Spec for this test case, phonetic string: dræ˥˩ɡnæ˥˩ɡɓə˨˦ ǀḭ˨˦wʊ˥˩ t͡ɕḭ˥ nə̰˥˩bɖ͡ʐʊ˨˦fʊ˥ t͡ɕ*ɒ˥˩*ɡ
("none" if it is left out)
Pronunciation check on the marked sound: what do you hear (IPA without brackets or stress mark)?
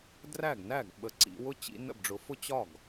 ɒ˥˩